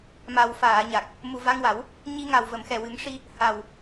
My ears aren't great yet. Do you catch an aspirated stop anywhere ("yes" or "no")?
no